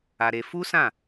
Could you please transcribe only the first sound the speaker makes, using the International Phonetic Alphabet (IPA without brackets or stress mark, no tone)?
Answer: a